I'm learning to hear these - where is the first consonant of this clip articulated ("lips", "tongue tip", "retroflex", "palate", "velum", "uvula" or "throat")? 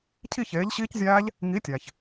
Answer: palate